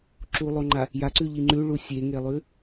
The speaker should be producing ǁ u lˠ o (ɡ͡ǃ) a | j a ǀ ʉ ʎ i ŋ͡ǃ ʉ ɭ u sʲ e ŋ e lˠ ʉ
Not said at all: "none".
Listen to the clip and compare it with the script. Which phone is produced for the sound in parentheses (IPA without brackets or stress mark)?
ŋ͡ǃ